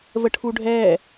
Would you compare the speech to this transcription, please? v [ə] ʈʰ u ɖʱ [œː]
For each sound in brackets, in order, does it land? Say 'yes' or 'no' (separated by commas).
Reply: yes, no